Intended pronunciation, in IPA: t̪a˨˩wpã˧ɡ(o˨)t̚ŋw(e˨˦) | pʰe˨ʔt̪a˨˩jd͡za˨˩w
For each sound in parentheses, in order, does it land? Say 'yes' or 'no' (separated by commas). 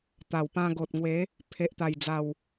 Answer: yes, yes